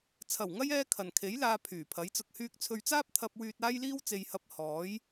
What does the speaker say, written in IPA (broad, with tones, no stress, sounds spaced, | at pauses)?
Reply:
t͡sʰ ɐ˨˩ w ŋ ɐ˥ j ɛː˥ kʰ ɐ˨ n kʰ e˨˥ j l aː˧ pʰ yː˨˩ pʰ ɐ˨˥ j t͡s ʊ˧ k̚ h yː˥ k̚ t͡sʰ ɵ˧ ɥ t͡s aː˥ p̚ t̪ʰ ɐ˧ p̚ w yː˧ t̚ aː˥ j l iː˥ w t͡s e˧ j h ɐ˧ p̚ h ɔː˨˥ j